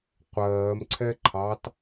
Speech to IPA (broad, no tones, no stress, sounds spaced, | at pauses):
qʷ ɜː m ǀʰ ɛ ǃʰ ɑ t